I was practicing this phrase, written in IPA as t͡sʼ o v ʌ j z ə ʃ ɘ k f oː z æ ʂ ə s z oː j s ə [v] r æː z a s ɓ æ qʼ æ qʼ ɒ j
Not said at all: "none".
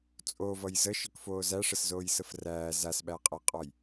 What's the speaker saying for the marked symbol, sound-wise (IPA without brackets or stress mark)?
f